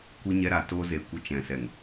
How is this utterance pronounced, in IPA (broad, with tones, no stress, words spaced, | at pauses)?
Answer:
kʷɨ˧ɲɛ˧ɾa˨ toː˧ze˨˦ kʷə˧ t͡ʃɛ̃˨sɛ˨ŋ